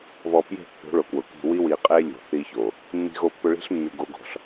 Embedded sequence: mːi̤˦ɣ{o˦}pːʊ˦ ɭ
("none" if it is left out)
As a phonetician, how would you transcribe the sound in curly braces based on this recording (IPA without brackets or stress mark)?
o˦